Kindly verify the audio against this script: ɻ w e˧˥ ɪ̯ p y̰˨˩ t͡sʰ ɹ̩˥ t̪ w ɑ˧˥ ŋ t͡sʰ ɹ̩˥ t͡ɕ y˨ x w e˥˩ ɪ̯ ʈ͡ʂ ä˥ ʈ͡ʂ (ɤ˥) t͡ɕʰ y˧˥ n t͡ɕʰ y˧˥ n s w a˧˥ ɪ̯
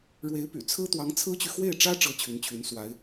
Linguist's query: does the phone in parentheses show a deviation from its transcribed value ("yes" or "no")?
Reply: no